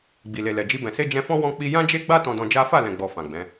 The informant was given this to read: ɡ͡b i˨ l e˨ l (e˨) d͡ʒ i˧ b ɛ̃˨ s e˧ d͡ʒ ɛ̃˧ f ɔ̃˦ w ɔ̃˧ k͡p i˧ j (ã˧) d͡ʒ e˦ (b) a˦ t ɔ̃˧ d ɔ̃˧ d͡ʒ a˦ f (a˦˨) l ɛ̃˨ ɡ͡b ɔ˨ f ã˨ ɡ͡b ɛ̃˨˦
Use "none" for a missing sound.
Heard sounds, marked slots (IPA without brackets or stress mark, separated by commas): ɛ˨, ã˦, ɡ͡b, a˦˨